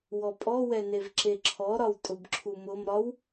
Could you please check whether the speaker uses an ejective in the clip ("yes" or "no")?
yes